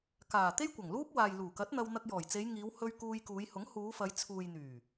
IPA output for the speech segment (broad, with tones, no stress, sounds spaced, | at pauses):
k aː˨˩ t̪ e˥ j kʷ ɐ˨˩ ŋ l uː˥ p̚ w aː˨ j l uː˨˩ k ɐ˨˥ t̚ n̪ ɐ˧ w n̪ ɐ˧ k̚ j ɔː˨˩ j t͡s e˨˧ j ŋ iː˨˧ w h ɵ˧ ɥ k uː˧ j k uː˨˧ j h ʊ˨˥ ŋ h uː˨˧ f ɐ˨˧ j t͡sʰ uː˨ j n̪ yː˨˩